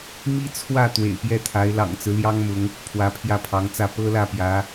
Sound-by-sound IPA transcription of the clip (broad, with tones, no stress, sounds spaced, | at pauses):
m i˥ t͡sʰ w ä˥˩ t̪ w ḛ˨˩ ɪ̯ p j ɛ˥˩ t̪ʰ a˧˥ ɪ̯ l ɑ̰˨˩ ŋ t͡s ɹ̩˦ l j ɑ˥ ŋ m ʊ˧˥ ŋ | pʰ w ä˧˥ pʰ j ä˥˩ pʰ ɑ˧˥ ŋ t͡s ä˥˩ p ɤ˥ l ä˥˩ p j ä˧˥